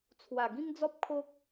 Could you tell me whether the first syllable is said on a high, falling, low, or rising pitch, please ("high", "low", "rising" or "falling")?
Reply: low